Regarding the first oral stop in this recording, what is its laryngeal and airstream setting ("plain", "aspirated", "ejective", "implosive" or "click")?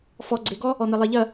click